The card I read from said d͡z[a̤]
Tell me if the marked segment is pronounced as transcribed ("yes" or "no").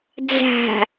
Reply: yes